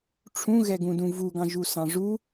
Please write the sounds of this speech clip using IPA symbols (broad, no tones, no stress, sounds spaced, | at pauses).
ʈ͡ʂʰ ũ ɣ ɛ ɡ ũ d ũ v u ɡ ɑ̃ ʒ u s ɑ̃ ʐ u